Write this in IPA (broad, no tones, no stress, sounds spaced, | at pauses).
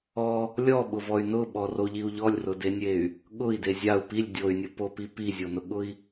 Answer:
ɔ | lʲ ɔ ɓ ʊ v ɔ y̯ n ʊ ɓ ɔ r o ʎ i u̯ ʎ ɔ lʲ r ʊ d e nʲ e y̯ | ɠ ʊ i̯ d e zʲ a u̯ p i lʲ dʲ o y̯ nʲ ʊ p o p i p i zʲ o n ʊ ɠ ʊ i̯